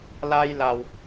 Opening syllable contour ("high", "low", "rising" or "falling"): high